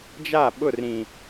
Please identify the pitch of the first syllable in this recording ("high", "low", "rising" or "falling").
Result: falling